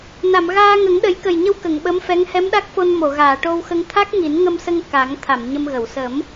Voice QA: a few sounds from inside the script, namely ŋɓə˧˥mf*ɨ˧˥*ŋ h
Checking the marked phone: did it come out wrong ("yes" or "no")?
yes